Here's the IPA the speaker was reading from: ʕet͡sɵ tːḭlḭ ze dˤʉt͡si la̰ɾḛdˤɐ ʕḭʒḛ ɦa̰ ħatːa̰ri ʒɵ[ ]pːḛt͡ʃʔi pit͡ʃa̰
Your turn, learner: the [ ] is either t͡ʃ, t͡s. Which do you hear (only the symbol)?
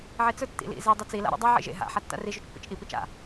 t͡ʃ